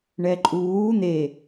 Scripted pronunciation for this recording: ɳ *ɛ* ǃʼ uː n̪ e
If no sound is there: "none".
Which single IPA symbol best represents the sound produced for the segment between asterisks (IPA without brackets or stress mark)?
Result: ɛ